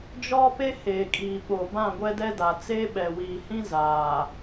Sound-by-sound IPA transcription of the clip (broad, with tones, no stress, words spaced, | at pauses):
d͡ʒɔ˦pe˦ heː˨kʼiː˨ ɓo˨ bã˦˨ ɡʷɛ˦dɛ˦da˨ t͡seː˦ɓɛ˨wiː˨hĩ˦ zaː˨